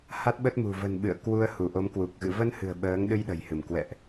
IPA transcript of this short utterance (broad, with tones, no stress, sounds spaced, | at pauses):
h a˦˥ t̚ ɓ ə˦˥ t̚ m ṳ˨˩ v ə̤˨˩ n ɓ ɨ̰˧˨ ə̯ k w u˧ ə̯ h u˧˩ ʔ o˨˦ m k w u˨˩ k̚ ɣ ɨ̰˧˨ v ə˧ n h ɨ̤˨˩ ə̯ ɓ əː˨˦ ŋ ɗ ɨ˧ j ɗ ə̤˨˩ j h ɨ˧˩ m k w ɛ̰˧˨ ʔ